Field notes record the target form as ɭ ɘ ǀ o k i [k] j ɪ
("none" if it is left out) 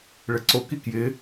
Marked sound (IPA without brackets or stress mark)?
k